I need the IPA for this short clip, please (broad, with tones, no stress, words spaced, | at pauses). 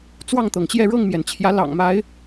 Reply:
t͡swɑ˥˨ŋt̪ɤ˩ŋt͡ɕjɛ˥˨ ɻɤ˥˨ŋmjɛ˩nt͡ɕʰjä˨˦ lɑ̰˨˩ŋma˨˦ɪ̯